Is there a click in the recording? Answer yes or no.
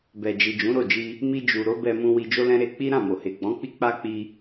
no